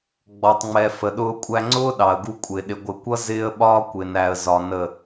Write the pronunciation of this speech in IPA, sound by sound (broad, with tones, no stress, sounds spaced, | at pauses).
ɡ͡b ɔ˨ tˤ ŋ͡m ɛ˨ f ə˨ ɗ ʊː˦ kʷʼ æ˦ ŋ͡ǀ ʊː˦ ɗ ɑ˨ ə̯ ɡ u˦ kʷʼ ɪː˨ ɗ ɪ˨ ɡʷ ɪ˨ kʷ ʌ˦ z ɪː˦ ə̯ ɓ ɒː˦ kʷ ɪː˨ n æ˨ ə̯ z ɒ˨ n ə˦˨